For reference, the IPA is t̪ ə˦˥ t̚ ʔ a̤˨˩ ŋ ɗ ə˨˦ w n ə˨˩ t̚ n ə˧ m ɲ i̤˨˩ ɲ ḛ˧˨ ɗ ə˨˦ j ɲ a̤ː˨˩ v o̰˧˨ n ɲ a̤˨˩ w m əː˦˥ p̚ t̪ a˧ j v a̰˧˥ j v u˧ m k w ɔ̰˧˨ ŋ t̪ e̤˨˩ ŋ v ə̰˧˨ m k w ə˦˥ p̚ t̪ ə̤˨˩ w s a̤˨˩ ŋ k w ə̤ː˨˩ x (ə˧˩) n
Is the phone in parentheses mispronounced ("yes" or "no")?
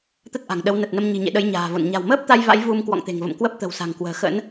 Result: yes